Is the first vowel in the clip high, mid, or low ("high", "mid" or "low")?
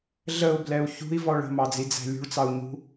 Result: mid